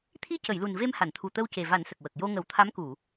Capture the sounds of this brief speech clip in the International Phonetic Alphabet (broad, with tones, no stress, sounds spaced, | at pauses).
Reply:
t̪ʰ i˧ c ə˨˩˨ j l u˨˩ n v e˧ m h a˨˩˨ n t̪ʰ u˨˩ t̪ ə˧ w c e˨˩ v a˨˩˦ n s ə˨˩ k̚ w ə˨˩ k̚ j o˧ ŋ ə˨˩˦ w t̪ʰ a˧˥ m k u˨˩˨